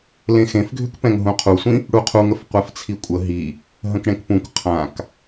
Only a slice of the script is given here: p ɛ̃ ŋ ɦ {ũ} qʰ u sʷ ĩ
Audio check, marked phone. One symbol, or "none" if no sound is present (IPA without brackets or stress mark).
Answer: ũ